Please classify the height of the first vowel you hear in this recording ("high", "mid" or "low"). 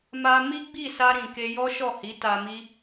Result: low